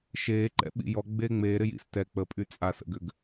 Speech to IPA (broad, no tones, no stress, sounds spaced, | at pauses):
ʃ eː ǃ ɛ̰ ɓ ḭ j ɔ ɡ͡b eː ŋ͡m eː ɾ ɪ j ḭ s t ɛ k͡p ə pʼ y t͡sʼ a s ə̰ ɡ ʏ ɡ